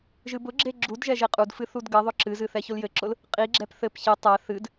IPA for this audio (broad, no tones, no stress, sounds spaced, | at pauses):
ʒ ɨ b ʊ ɡ͡ǁ e ɡ͡ǁ u d ʒ ɛ ʒ e qʼ u d f ɨ θ u d ɡ ɘ ðˤ ʊ ǁ ɨ z ɨ θ ɛ ç ʊ l j ɘ ǁ ʊ l | qʼ i ɡ͡ǁ ɛ p θ ɘ p ç e tˤ ɛ θ ɨ d